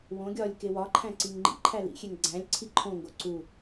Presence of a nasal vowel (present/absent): present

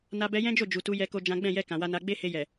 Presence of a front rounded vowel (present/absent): absent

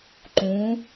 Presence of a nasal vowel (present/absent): present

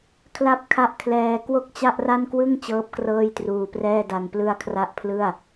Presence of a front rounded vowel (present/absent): absent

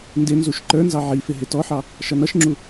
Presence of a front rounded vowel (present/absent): absent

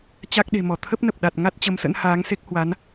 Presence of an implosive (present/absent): present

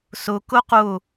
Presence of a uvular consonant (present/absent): present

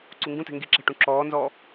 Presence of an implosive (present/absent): absent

